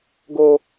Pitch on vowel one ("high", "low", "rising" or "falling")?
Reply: high